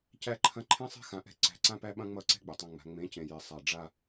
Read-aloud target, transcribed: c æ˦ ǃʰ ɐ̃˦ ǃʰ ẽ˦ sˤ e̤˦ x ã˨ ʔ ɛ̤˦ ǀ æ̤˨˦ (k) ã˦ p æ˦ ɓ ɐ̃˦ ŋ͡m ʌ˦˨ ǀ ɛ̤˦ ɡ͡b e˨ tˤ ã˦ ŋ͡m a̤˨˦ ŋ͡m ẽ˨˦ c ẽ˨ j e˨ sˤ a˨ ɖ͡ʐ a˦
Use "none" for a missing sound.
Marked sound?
ǀ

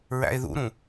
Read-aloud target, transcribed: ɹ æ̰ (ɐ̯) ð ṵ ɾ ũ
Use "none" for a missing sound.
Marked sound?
e̯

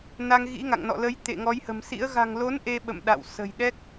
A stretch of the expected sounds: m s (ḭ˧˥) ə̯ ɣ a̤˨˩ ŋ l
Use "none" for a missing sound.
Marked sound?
ḭ˧˥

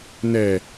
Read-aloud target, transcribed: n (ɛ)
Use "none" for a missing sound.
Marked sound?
ɛ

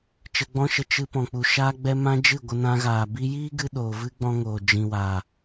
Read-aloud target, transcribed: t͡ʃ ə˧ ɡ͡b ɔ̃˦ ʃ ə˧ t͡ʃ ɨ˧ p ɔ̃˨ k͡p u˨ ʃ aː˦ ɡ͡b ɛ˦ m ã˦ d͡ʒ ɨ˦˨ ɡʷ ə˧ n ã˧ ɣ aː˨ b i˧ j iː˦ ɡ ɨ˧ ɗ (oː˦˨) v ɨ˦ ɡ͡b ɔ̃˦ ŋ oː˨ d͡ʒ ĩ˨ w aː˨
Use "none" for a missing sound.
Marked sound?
oː˨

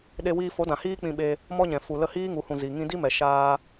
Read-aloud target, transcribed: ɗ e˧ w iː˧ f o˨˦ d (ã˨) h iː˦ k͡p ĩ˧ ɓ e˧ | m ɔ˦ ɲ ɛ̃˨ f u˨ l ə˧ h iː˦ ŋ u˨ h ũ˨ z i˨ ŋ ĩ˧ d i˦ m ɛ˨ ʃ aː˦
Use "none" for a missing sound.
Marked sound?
ã˨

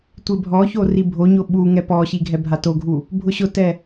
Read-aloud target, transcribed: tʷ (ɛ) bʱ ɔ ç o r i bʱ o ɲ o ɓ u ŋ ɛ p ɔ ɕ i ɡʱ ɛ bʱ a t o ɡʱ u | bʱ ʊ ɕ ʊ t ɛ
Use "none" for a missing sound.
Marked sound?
e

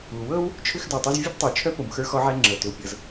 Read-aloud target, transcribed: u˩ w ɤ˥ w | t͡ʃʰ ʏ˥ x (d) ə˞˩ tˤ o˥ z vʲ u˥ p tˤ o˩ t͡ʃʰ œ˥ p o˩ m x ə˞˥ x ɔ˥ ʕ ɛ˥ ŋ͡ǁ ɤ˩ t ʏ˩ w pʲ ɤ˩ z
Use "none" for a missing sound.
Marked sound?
d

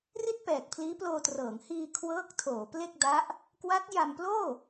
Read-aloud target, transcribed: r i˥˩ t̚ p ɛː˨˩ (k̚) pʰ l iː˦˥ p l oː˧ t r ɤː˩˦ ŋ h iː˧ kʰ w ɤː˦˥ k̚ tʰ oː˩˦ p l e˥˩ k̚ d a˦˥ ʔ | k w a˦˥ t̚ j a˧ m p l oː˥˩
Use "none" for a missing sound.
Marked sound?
k̚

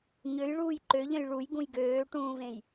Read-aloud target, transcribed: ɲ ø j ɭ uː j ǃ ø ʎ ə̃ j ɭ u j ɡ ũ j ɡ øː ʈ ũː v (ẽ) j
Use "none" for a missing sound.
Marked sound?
ẽ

